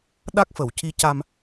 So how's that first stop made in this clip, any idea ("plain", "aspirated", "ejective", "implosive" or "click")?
implosive